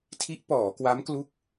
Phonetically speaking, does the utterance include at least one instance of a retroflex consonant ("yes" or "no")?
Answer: no